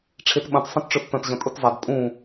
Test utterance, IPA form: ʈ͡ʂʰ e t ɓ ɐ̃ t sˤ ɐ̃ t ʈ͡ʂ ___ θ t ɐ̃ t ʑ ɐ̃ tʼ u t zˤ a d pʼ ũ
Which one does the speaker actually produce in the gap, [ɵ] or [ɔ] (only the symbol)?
ɵ